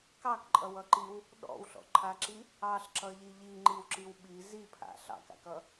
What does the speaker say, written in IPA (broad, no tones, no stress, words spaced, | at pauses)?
kɑkǃʼʌwʌǃiw | ɗɔ̰wɬɔ̰ǃʰaǁi | ɑɬǁʌʎi ʎiŋ͡ǃiwǁiw ɓi zipʰa̰ ɬɑ̰ka̰kʌ